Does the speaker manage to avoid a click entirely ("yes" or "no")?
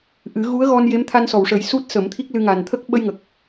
yes